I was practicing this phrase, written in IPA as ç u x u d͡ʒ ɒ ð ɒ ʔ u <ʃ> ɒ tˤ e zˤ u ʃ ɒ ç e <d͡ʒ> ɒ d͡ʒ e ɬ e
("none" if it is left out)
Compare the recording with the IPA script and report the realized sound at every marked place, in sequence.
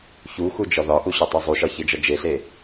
ɕ, d͡ʒ

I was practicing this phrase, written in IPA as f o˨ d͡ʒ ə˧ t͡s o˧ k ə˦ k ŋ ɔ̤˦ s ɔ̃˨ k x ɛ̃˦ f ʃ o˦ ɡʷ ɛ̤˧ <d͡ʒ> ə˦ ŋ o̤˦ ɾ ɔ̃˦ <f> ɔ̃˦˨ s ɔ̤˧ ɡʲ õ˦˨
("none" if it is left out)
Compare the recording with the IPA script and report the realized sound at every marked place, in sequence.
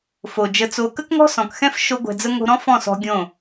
d͡z, f

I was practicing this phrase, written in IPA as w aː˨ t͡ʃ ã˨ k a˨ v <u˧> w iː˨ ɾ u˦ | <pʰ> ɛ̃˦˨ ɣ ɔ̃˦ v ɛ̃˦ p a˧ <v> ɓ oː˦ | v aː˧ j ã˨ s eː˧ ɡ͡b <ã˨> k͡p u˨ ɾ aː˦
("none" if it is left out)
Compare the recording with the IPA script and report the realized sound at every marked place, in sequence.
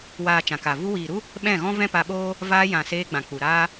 u˧, ɓ, none, ã˨

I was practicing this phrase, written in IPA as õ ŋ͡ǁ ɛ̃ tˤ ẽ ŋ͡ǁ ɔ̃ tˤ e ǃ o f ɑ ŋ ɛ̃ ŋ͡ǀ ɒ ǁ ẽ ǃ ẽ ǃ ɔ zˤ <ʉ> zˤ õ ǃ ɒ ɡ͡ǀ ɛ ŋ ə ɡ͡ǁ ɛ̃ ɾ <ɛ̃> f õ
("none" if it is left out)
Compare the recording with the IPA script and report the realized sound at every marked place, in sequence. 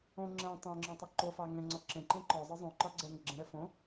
ə, ɛ

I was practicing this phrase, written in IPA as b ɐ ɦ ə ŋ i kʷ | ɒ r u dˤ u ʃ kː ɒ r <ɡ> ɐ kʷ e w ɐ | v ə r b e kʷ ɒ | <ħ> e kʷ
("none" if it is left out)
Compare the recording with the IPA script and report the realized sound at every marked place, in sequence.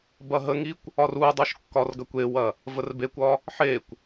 ɡ, ħ

